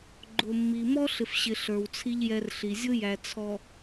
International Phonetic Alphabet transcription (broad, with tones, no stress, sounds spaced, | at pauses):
ɡ͡ǃ ʊ˨ mː i˨ m ɔ˦ ɬ ɪ˨ f ɕ ɪ˨ ɬ ə˞˨ w t͡sʰ i˦ ʎ j ɛ˦ r ɬ i˨ zʲ ʊ˦ j æ˨ t͡sʰ ɔ˨